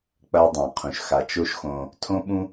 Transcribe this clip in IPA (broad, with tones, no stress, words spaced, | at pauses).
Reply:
k͡pɐ˦u̯dˤã˩qʰũ˩ʃ xa˩t͡ʃo˦ʃxõ˨ | tʰõ˥ɓũ˥